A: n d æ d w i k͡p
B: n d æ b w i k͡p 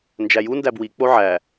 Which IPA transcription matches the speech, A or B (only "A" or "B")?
B